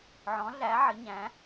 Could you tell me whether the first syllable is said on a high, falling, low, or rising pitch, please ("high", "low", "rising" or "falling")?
rising